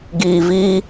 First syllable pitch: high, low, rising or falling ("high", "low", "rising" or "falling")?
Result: low